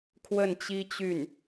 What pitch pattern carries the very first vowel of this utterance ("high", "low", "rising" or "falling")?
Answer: falling